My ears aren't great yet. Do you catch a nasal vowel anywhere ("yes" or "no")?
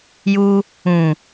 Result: yes